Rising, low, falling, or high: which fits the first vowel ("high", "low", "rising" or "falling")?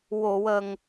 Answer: low